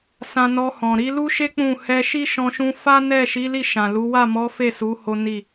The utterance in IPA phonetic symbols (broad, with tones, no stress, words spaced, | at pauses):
sã˧nɔ˧hɔ̃˨ ɾi˧lu˦ʃe˦ k͡pũ˦˨ hɛ˧ʃi˦ʃɔ̃˧ʃũ˧ fa˦nɛ˦˨ ʃi˨˦ li˦˨ʃã˨lu˨˦ wa˦˨mɔ˨˦ fe˦˨su˨˦ ho˦ni˦˨